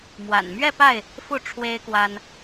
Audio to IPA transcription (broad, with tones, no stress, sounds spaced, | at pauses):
m w a̰˨˩ n m ɥ ɛ˥˨ p a˥˨ ɪ̯ | f u˥˨ ʈ͡ʂʰ w e˦ ɪ̯ k w a˦ n